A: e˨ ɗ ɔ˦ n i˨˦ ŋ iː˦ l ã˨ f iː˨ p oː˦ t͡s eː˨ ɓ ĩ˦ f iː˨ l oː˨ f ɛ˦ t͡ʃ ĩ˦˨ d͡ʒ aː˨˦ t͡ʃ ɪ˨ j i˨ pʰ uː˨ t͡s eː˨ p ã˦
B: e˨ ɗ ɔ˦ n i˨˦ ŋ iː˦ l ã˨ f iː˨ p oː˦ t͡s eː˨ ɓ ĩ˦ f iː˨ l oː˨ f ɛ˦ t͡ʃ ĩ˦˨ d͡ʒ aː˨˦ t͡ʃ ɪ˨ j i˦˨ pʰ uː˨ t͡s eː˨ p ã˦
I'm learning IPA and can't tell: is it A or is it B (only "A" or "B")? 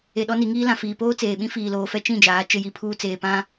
A